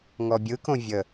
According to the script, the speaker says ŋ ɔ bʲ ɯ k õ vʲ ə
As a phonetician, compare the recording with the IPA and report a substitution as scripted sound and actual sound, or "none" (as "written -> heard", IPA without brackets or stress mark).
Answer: none